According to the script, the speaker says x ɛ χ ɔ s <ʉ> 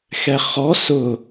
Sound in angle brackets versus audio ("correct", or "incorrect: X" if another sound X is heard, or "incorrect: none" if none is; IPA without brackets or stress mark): incorrect: ʊ